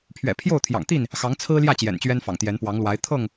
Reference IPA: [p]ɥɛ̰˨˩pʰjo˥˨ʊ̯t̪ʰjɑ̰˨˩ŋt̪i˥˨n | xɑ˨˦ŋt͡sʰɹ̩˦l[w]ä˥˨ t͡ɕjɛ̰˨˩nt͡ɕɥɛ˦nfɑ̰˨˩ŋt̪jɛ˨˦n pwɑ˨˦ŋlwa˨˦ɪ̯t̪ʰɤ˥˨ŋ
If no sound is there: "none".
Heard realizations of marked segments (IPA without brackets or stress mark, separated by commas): pʰ, j